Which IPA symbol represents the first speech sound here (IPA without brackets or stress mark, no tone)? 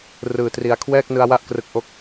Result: r